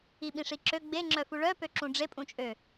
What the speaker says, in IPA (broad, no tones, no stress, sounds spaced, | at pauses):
i ɓ ĩ ʂ i ǁ ø ɡ͡b e ŋ͡ǁ œ f u ɭ œ p ø ǁ ũ ɖ͡ʐ e pʼ ũ t͡ʃʼ ø